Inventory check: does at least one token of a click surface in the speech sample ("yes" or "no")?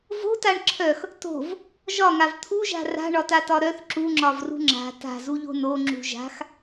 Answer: yes